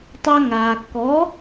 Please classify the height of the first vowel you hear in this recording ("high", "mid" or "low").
low